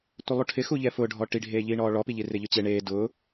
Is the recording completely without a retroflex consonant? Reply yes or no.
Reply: no